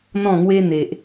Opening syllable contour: falling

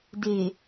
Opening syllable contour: low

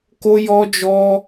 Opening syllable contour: high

